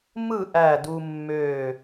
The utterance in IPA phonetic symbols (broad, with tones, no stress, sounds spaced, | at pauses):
m ɯ˦˨ ʔ æ˦˨ d u˦ mː ø˦˨